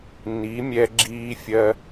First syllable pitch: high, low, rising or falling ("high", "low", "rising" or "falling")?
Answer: rising